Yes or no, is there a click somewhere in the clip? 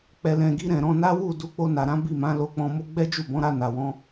no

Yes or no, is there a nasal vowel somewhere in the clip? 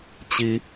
no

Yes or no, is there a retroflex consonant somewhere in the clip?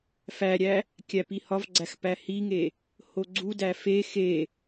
no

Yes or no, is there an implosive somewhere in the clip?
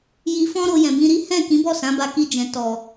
no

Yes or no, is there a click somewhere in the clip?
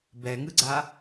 yes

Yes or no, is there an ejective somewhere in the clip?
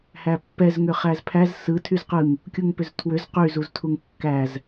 no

